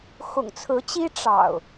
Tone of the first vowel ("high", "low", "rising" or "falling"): low